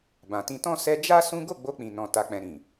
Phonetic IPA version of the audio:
bã˨tĩ˧tɔ̃˦ sɛ˦ d͡ʒa˦ sũ˦ ɡo˦˨ɡ͡bo˧k͡pĩ˨nɔ̃˨ ta˧k͡pɛ̃˧ ɾĩ˨

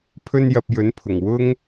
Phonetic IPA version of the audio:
pʰɵ˥njɐ˧p̚jɵ˨˥npʰʊ˨˩ŋ wʊ˥ŋ

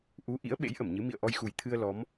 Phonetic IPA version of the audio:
ʔu˨˦ ʔḭ˧˥ə̯ɓḛ˧˥j ʔə˧˩mɲɨ˨˦ mḭ˧˨ə̯ʔɔ˧jxu˨˩j t̪ʰɨ˧ə̯ lɔ˨˦m

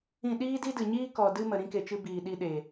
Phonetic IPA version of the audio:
ĩ˦˨ ɗiː˦di˦dɨ˨ɲiː˦ kɔ˨ dɨ˦mə˨ ɾĩ˧ke˨t͡ʃɨ˧ biː˨ɗi˧ ɗe˨

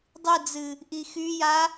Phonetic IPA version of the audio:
dˤɨd͡zɨ | ʔixyja

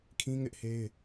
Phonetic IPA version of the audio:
kʰĩ˦ŋɪ˦ʔhe˦ɪ̯

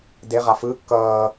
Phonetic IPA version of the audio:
deʁa fɯː kːʌː

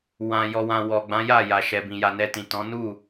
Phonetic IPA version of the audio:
wã˨ jɔ˨wã˨ wɔ˨ɡ͡bã˨˦ja˦˨ ja˨ʃɛ˨bĩ˨ja˨ nɛ˧tĩ˨tɔ̃˨˦ nu˦˨

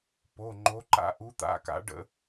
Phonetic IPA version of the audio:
po˩˧˩ŋ͡ǃo˨˦ǃa̰˨˦ ʔu˨˦t̪a̰˩˧˩ka̰˨˦ ɖə̰˧˩˧

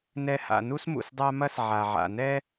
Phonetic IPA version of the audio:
nɛ˨ha̰˩ nu˦smṵ˩s dˤa˦ mɐ˦s ʕa˩ʕa̰˩nɛ˦

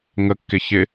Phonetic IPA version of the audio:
ŋəkːɪ çɪ

